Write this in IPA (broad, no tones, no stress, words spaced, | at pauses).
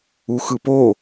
uxɯpo